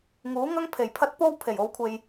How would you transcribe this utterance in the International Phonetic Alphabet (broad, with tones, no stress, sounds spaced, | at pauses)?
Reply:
ŋ uː˨˥ ŋ ɐ˥ ŋ pʰ e˨˩ j pʰ ɐ˥ t̚ p o˥ w pʰ e˨˩ j o˨˧ w kʷʰ e˨ j